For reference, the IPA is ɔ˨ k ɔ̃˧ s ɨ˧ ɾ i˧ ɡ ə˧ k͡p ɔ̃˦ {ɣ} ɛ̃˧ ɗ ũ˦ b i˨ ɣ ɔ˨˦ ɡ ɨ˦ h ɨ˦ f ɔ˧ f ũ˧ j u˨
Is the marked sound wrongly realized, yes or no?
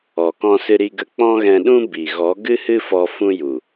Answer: no